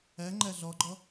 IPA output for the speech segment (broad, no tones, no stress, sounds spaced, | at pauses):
æ ŋ͡ǃ æ ɮ ɒ ɡ͡ǃ ɒ